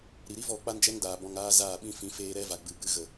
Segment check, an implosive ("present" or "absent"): present